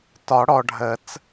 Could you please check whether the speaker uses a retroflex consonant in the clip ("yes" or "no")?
yes